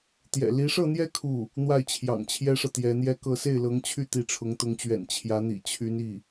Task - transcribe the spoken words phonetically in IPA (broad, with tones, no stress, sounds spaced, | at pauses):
t̪ j ɛ̰˨˩ l i˧˥ ʂ ɤ˥˧ n̪ j ɛ˥˧ kʰ u˥˩ | n̪ w a˥˩ ɪ̯ t͡ɕʰ j ɑ̰˨˩ ŋ t͡ɕʰ j ɛ˥ ʂ ɤ˨ t̪ j ɛ˧˥ n̪ j ɛ˥ k ɤ˥˧ s e˥˩ ɪ̯ l ɤ˧˥ ŋ t͡ɕʰ y˥˩ t̪ i˧˥ ʈ͡ʂʰ ʊ˧˥ ŋ t̪ ʊ˧˥ ŋ t͡ɕ ɥ ɛ̰˨˩ n t͡ɕʰ j ä˧˥ n̪ ḭ˨˩ t͡ɕʰ y˧˥ n i˥˩